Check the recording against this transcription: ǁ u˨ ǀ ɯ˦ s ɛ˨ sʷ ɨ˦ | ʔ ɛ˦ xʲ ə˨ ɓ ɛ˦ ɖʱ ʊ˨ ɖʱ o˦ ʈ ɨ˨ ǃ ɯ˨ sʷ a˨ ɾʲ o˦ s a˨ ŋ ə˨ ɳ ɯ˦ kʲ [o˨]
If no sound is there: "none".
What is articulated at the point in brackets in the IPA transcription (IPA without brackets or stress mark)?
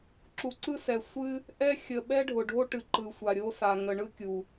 u˨